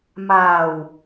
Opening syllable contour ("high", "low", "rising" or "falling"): low